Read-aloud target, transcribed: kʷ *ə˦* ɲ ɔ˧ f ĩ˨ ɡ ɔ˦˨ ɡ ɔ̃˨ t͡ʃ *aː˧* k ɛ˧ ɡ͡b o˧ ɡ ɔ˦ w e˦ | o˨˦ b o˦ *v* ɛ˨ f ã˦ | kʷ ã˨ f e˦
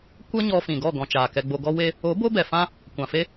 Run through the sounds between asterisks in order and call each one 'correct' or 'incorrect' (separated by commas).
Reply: correct, incorrect, incorrect